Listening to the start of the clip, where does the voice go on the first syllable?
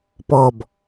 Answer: low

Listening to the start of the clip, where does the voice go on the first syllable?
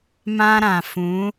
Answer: high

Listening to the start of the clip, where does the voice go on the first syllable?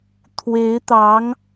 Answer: rising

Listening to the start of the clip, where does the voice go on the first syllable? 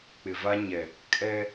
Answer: low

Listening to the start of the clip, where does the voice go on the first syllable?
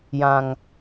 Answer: low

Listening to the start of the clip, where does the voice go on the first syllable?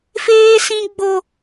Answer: high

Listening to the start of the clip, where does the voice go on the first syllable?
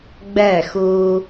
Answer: falling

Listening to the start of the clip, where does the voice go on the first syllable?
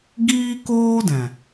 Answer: high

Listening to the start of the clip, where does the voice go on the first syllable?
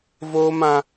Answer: high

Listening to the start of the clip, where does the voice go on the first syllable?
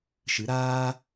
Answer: rising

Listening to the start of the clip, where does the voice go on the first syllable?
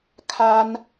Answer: high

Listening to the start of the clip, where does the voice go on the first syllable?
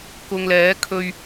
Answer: low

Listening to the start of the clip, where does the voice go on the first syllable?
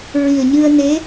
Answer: low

